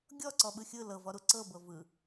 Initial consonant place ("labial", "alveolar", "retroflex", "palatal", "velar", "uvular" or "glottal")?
velar